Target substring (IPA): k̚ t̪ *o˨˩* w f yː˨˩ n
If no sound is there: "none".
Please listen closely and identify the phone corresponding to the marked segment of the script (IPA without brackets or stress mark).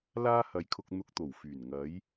o˨˩